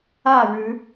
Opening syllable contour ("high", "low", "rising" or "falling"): falling